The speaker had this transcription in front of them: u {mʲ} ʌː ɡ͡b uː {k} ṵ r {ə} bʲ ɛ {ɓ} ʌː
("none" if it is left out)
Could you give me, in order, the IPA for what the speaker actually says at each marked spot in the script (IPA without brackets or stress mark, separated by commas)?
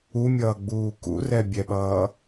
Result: mʲ, k, ɛ, ɓ